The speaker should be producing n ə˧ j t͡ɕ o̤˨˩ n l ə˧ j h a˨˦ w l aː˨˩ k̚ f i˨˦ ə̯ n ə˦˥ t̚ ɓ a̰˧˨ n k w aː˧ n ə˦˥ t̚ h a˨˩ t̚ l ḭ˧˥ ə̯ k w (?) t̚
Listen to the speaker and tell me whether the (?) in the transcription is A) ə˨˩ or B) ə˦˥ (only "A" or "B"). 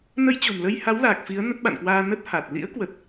A